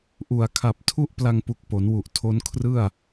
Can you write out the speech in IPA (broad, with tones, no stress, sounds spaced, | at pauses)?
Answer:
ʔ u˨˩ a̯ kʰ a˨˩ p̚ tʰ u˥˩ ʔ p l a˧ ŋ p u˨˩ k̚ p o˩˦ n w u˨˩ ʔ tʰ o˦˥ n kʰ r ɯ˥˩ a̯